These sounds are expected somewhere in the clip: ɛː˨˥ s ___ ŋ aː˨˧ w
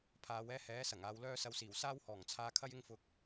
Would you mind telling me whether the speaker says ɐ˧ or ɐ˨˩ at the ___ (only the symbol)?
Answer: ɐ˨˩